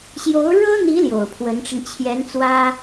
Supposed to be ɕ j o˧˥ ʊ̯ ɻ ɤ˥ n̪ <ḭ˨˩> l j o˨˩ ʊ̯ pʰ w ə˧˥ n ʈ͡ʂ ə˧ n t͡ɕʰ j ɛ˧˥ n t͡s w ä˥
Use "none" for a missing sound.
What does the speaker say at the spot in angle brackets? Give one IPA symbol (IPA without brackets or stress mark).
i˧˥